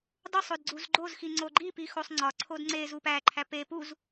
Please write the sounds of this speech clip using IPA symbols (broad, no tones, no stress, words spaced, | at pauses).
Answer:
dˤosˤod ɡ͡ǀuzɡ͡ǃozxi ŋ͡ǀoɡ͡ǃipi xosˤŋ͡ǀɒǀʰod ŋ͡ǀezu pæǃʰæ pe puz